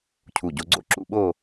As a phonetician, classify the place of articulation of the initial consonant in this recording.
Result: palatal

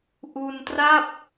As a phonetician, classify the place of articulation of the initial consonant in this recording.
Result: glottal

